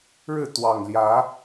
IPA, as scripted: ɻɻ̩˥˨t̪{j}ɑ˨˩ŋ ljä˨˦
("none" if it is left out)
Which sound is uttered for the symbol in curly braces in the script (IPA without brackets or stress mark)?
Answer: w